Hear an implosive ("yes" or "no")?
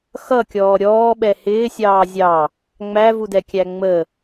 yes